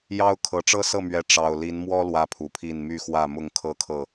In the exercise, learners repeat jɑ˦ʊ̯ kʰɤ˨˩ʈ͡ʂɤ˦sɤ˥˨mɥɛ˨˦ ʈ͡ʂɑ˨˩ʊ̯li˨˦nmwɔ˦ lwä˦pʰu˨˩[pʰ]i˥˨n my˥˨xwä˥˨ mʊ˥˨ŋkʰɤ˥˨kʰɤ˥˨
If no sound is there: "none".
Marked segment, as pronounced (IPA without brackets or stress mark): pʰ